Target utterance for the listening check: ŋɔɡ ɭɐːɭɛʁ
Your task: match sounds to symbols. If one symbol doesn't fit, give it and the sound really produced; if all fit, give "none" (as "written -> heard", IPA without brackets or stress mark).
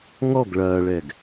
ʁ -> ɡ